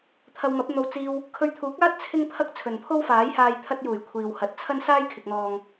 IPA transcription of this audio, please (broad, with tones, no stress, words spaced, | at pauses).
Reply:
t̪ʰɐ˧wmɐ˨˥p̚ n̪o˧w t͡siː˧w | kʰɵ˧ɥt̪ʰuː˨˥k̚aː˥t̚ t͡sʰɪ˥ŋpʰɐ˥k̚ t͡sʰɵ˨npʰo˥wfaː˨˥jhaː˧j t̪ʰɐ˧t̚juː˨˩j kʷʰiː˨whɐ˨˥t̚ t͡sʰɐ˥nsaː˥jkʰɪ˨k̚n̪ɔː˨ŋ